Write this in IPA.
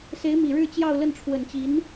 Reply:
se˧˥ɪ̯mi˨˩ɻɻ̩˥˧t͡ɕjɑ˥˧ʊ̯ lə˥˩nʈ͡ʂʰwə˨˩nt͡ɕi˧˥n

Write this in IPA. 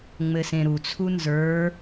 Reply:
ŋ͡mɘsẽɾut͡sʰu nzə˞

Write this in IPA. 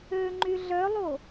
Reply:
ø ŋ͡ǃyɮœlˠo

